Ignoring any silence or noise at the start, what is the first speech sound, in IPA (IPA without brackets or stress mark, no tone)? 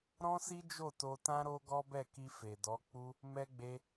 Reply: ɾ